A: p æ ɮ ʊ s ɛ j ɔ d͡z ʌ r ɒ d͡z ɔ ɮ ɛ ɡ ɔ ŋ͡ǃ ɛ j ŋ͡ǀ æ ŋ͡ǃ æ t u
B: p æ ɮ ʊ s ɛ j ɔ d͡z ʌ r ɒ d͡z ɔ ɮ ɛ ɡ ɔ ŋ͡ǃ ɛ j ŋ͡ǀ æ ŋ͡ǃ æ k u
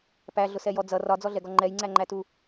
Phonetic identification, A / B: A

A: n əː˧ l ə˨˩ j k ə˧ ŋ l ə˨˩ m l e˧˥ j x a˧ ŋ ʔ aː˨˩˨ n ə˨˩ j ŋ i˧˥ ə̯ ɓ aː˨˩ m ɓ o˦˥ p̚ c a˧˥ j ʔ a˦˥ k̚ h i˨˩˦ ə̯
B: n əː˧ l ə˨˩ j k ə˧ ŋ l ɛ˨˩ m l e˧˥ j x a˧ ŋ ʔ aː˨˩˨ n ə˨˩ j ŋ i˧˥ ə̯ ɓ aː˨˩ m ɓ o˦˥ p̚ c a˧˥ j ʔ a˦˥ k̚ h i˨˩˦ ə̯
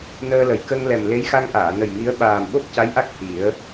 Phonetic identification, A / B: B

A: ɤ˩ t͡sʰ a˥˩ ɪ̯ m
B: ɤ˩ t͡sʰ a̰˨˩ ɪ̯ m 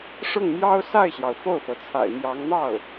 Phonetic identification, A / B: B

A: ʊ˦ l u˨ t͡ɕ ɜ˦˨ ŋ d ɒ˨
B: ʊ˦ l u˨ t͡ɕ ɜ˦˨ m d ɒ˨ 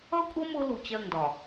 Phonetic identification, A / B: A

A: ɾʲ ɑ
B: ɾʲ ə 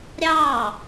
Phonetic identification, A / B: A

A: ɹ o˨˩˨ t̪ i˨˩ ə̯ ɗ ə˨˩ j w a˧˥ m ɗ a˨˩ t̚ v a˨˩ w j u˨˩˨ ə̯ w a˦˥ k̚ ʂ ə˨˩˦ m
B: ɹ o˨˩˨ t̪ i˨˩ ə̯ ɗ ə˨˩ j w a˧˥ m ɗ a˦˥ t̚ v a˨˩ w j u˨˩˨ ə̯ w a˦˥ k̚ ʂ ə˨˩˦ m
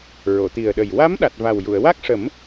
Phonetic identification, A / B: A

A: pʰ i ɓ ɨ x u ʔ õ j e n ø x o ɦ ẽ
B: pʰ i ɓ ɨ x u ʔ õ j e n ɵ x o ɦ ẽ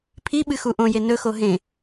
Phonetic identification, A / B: B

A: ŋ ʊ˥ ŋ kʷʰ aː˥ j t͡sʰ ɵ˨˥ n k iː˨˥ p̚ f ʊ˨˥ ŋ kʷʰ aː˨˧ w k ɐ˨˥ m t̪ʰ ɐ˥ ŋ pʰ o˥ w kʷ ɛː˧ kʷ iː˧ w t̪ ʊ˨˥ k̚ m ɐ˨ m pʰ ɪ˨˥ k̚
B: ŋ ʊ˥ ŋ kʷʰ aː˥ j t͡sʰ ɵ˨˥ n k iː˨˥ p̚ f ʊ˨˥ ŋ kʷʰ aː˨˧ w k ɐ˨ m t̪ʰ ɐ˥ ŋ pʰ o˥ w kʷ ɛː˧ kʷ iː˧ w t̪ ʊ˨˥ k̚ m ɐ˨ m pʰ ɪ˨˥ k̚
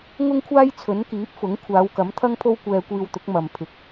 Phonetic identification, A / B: A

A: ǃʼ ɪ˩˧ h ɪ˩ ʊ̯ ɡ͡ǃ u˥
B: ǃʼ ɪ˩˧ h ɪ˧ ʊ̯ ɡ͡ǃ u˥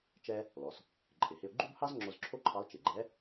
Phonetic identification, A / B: B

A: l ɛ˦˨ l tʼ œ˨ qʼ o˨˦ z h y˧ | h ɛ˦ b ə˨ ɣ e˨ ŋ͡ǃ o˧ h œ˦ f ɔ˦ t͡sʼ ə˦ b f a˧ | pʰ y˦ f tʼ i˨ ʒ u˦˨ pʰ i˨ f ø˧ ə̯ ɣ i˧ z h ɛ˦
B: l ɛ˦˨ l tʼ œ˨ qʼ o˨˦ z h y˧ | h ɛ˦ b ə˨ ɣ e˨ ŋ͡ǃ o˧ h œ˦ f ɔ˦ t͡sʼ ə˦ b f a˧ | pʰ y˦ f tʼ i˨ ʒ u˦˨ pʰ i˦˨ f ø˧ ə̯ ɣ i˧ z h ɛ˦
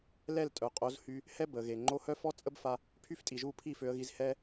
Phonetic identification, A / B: B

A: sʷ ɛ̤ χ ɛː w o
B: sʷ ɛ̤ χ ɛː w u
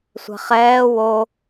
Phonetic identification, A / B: A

